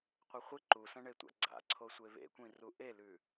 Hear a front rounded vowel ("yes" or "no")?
no